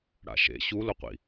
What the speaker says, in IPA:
ɽ a̰ ʃ ḛ ɕ u l o qʷ ḭ

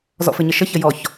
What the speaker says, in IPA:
z ɔ̰ f ɘ ɲ ə ʃ ə ç ə j ɔ ç

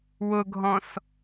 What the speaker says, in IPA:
w ʊ ɡʱ ɔ̃ s

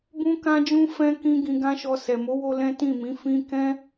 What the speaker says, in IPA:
b ũ˦ k ã˦ d͡ʒ ũ˦ f ɛ̃˦ k ĩ˦ ɡ ĩ˧ ɡ ã˦ ʃ ɔ˧ s ɛ˨ m o˨˦ w o˧ l ɛ̃˦ t ĩ˦˨ m ĩ˨˦ f ĩ˦ k ɛ̃˦

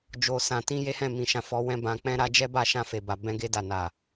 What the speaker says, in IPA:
d͡ʒ o˨ s ã˨ t ĩ˧ j e˦ h ɛ̃˦˨ m ĩ˨ ʃ ã˨ f ɔ˨˦ w ɛ̃˦ b ã˧ k͡p ɛ̃˧ ɾ a˧ d͡ʒ ɛ˦ b a˦˨ ʃ ã˧ f e˨ b a˨ b ɛ̃˧ ɡ e˧ d a˨ n a˨

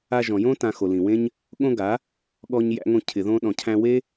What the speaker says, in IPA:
a˧ ʒ ɔ̃˨ j õ˦ t ã˨ x o˨ l ĩ˨ w ẽ˦ ɲ | ɠ õ˦ ɡ a˨˦ | ɠ ɔ˧ ɲ j æ̰˧ ŋ õ˧ cʰ ɪ˨ ð õ˧ ɗ ɔ̃˨ cʰ æ̃˧ w e˦

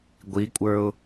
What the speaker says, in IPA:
ɡʷ i kʷʼ ə˞ ʊ̯

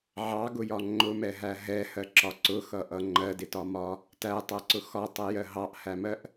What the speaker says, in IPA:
ʕ ɑ ɡ ʊ j ɒ ŋ͡ǃ ʊ m ɛ ɦ æ ɦ ɛ h ɜ ǁ ɒ ǀ ʊ x ʌ ʔ ʌ ŋ͡ǃ ɜ d ɪ t ɒ m ɒ | t æ tˤ æ ǀ ʊ x ɒ tˤ ɛ j ɜ ɦ ɑ ʔ h æ m ɜ ʔ

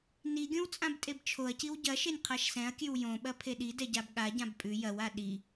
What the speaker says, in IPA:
n i ɡʲ õ w t͡sʼ ã b tʼ e b t͡ʃʰ o ɐ̯ c i w ɟ ɐ ʃ e nʲ qʰ a ʃ s ɛ̃ ɐ̯ kʲ ʉ w j õ ɓ ɐ pʰ e ɗ i d ɛ ɟ a b ɠ a ɟ ã b pʼ ʉ j ɐ w a ɗ i

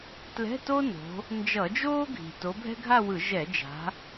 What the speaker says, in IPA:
t l ɛ̤˧˥˧ t o˥ n o̤˨˦ | n d͡ʒ ʌ˧˩˧ d͡ʒ oː˥ ɡʱ i̤˨˩ t o˨˦ bʱ ɛ̤˥ ɡʱ a˥˧ w ɯ˧˩˧ ʒ ɛ˧˩˧ d͡ʒ a̤˨˦

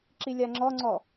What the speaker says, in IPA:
ǁ i lʲ a ŋ͡ǁ ɔ ŋ͡ǀ ɔ

